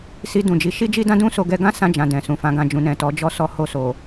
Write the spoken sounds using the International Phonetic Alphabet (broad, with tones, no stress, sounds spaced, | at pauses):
s i˧ d ũ˨ d͡ʒ i˨˦ ʃ i˦ d͡ʒ i˦ d ã˦ d ũ˦ s o˧ ɡ ɛ˧ ɡ ã˦ s ã˧ d͡ʒ ã˨ d ɛ̃˨ s ũ˨ f ã˨˦ ɡ ã˧ d͡ʒ ũ˨ n ɛ̃˨ t ɔ˨˦ d͡ʒ ɔ˦ s ɔ˦ h o˦˨ s o˨